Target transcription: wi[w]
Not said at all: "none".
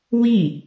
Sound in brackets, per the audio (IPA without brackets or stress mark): none